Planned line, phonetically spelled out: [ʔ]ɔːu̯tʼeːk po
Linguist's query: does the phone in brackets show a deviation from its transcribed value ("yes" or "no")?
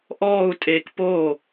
no